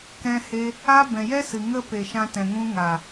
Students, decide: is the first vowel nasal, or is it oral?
nasal